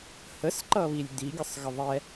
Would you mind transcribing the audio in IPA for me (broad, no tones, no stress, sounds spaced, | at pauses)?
h ə s ǃ ʌ β i lʲ d̪ i ɡʲ ə sˤ ɣ ə ðˤ ɛ